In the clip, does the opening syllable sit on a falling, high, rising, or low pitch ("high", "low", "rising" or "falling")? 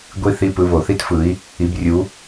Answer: falling